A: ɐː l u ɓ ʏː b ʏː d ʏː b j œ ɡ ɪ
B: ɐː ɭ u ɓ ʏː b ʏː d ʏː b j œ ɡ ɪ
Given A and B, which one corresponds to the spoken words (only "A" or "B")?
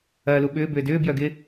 A